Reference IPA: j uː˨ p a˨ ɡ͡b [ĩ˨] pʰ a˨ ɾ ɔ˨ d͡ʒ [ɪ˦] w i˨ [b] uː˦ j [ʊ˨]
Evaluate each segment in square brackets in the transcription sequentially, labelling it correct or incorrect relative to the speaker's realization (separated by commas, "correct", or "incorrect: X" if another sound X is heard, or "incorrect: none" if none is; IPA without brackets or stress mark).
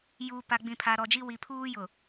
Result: correct, incorrect: i˦, incorrect: pʰ, correct